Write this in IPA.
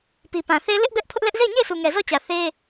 p i˨ p ã˨ θ e˦ l ɪ˦ ʔ b ɛ˦ ʔ pʰ ʊ˦ ʔ l ɛ˦ ʔ z e˦˨ ɪ̯ ɲ e˦˨ ɪ̯ sʰ u˨ ŋ ɛ˨ z ɔ˦˨ t͡ɕ ä˨ θ e˦

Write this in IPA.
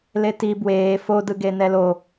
l e t i b w eː f o d ɯ ɡ e n ɛ l o

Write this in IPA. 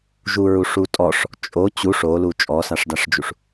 ʒ u ɹ u ʂ u tʼ ɔ ʂ | t͡ʃʼ o t͡ɕ u ʂ o l u t͡ʃʼ ɔ s a ʂ d a ʂ d͡ʒ u ʂ

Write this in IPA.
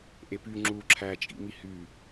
ʔ e p y ŋ͡ǁ u ǁʰ æ t͡ʃʼ ḭ m i h y

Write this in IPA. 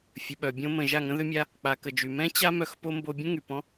fʲ ə˨ ɓ œ˨ bʲ õ˧ m ə̃˨ ʒ a˦˨ ŋ ə̃˦ ð ʏ˦ mʲ a˦ | k͡p a˨ k ə˨ d͡ʒ y˨ m ɛ̃˦ t͡ɕ a˦ m œ˧ x p o˦ m b o˧ bʲ ə̃˦ ŋ y˨ p ɔ̃˦

